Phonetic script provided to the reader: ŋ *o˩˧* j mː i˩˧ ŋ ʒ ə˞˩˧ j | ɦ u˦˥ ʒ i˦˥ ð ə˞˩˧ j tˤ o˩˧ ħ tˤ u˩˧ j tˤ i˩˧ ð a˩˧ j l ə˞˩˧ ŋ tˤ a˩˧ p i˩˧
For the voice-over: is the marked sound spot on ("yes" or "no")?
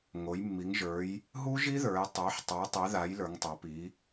yes